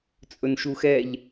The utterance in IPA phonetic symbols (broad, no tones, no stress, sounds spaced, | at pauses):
t͡sʼ ɵ n ʃ u x ɛ ʎ